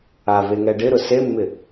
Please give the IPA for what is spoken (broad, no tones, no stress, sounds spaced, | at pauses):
a v e ŋ ɛ ɖ ɪ ɾ ʊ s e mː ɪ